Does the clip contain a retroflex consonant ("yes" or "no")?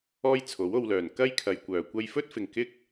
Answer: no